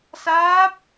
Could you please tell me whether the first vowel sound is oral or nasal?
oral